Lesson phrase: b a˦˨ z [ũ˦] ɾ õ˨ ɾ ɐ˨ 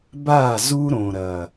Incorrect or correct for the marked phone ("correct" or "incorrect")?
incorrect